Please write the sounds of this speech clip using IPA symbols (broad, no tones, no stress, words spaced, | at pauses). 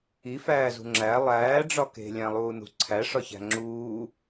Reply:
ifæːzṳ ŋ͡ǁæ lˠæːɖ͡ʐɒ ke̤lʲæ̃lˠuːnṳ ǀʰæʂɒçæ̤ ŋ͡ǁuː